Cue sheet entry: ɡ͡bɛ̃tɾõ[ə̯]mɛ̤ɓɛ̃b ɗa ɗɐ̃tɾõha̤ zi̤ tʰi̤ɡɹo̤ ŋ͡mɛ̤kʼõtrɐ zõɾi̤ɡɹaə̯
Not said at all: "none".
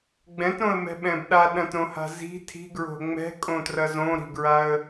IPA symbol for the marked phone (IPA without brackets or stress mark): ə̯